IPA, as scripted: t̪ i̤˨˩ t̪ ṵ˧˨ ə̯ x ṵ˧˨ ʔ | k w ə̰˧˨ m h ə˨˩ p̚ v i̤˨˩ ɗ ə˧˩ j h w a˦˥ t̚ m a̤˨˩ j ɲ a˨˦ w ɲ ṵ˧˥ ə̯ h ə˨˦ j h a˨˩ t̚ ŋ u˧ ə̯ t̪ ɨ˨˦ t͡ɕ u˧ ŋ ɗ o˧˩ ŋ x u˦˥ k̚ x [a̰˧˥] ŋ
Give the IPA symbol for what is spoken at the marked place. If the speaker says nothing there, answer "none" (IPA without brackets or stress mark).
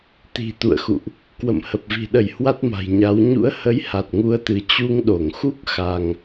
a˧